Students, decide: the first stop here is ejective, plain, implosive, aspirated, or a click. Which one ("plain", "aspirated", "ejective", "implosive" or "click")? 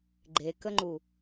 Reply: click